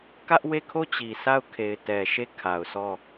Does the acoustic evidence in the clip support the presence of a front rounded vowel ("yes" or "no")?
no